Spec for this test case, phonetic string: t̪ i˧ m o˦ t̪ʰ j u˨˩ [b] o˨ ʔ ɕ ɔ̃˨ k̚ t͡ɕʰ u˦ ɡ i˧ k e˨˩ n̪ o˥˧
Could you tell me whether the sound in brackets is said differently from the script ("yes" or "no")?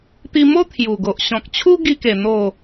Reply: yes